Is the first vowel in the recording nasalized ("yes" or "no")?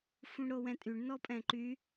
yes